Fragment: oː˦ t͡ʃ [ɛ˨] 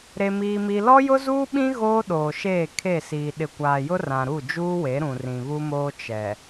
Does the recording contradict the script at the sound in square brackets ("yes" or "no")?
no